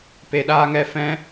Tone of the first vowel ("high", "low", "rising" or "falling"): low